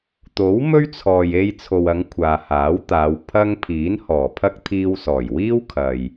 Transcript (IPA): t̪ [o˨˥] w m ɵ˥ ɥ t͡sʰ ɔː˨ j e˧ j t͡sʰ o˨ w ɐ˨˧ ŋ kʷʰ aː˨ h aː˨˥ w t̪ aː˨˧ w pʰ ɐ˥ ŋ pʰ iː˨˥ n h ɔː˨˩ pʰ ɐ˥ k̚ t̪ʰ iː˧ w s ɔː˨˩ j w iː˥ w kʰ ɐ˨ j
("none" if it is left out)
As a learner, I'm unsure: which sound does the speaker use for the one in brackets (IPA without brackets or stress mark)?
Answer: o˨˥